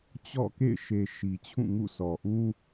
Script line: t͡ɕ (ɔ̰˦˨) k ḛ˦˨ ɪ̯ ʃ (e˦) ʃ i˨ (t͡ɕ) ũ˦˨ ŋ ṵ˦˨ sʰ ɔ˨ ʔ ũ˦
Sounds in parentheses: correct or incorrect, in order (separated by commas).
correct, incorrect, incorrect